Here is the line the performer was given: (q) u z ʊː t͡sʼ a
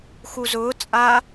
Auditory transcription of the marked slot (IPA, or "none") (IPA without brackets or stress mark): x